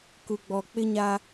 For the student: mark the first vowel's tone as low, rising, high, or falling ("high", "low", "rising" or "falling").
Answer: low